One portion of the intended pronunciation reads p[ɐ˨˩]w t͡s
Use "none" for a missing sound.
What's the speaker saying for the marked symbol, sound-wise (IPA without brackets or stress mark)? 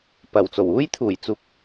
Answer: ɐ˨˩